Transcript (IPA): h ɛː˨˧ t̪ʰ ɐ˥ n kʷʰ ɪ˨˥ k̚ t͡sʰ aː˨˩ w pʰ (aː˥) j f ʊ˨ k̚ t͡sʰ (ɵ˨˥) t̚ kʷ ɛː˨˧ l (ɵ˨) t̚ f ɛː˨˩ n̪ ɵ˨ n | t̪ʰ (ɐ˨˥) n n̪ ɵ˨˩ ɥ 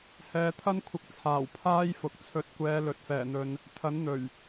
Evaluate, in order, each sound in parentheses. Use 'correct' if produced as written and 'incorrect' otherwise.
correct, correct, correct, correct

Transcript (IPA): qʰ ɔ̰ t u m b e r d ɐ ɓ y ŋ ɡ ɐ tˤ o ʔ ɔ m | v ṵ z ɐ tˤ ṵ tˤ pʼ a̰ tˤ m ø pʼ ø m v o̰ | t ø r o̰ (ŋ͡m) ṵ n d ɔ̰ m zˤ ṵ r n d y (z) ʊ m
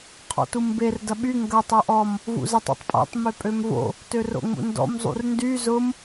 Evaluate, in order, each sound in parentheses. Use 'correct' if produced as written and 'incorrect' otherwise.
correct, correct

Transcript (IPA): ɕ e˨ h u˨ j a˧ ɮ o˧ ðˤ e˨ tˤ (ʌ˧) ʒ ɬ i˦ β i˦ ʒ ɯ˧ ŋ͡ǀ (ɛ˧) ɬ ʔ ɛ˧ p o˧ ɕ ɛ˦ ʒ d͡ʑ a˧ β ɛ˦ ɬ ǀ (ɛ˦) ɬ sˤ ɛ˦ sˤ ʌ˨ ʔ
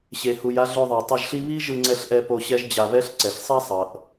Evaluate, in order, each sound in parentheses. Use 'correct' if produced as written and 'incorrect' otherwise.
correct, correct, incorrect: ɛ˨

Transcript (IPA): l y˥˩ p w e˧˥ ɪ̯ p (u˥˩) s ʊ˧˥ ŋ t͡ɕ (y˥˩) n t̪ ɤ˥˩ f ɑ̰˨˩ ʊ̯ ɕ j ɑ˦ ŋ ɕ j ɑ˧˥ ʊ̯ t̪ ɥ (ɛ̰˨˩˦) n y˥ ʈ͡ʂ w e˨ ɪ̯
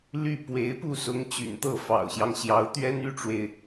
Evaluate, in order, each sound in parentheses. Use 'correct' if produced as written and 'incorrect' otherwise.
correct, incorrect: y̰˨˩, incorrect: ɛ˥

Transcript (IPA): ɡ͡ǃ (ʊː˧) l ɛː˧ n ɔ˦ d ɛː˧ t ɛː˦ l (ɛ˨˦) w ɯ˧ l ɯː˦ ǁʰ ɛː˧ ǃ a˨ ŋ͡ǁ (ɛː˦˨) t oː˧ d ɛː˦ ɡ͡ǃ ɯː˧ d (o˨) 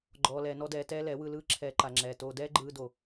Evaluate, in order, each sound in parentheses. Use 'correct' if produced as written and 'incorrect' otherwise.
incorrect: ɔː˧, correct, incorrect: ɛː˨, correct

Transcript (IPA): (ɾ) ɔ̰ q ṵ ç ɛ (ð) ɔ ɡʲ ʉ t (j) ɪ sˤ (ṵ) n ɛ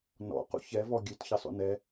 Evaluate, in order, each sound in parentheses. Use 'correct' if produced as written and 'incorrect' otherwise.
incorrect: n, incorrect: v, incorrect: ç, correct

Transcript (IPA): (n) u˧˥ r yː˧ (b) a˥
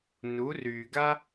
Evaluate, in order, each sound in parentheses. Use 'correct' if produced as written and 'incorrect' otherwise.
correct, incorrect: ɡ

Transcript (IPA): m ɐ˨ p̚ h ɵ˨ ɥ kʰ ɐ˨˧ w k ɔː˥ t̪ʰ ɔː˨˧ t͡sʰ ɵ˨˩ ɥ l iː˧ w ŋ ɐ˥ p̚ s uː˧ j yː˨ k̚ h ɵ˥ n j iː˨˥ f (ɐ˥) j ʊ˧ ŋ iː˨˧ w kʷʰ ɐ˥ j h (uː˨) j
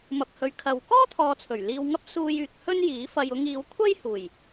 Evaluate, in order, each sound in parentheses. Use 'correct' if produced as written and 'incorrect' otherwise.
incorrect: ɐ˧, incorrect: uː˨˩

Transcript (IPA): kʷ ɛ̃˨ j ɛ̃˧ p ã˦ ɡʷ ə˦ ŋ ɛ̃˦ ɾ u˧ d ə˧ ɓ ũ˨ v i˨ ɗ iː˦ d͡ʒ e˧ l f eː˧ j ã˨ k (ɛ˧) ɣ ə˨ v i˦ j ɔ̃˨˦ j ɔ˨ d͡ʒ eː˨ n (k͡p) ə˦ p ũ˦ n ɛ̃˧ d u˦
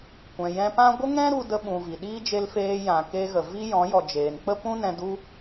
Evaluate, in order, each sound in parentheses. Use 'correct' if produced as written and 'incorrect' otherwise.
incorrect: e˧, correct

